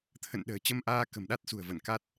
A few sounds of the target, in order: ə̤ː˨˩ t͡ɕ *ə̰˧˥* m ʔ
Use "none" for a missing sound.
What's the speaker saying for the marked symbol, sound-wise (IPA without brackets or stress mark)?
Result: ə˧